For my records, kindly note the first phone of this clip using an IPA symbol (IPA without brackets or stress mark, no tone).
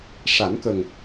ʂ